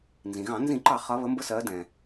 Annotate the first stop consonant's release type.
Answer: click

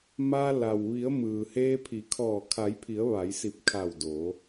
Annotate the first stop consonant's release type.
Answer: aspirated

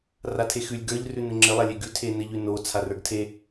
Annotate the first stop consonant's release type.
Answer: aspirated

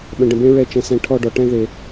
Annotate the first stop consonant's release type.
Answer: implosive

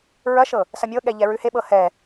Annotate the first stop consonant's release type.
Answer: implosive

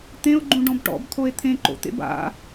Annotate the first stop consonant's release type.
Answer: plain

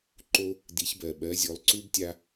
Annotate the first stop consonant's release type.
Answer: click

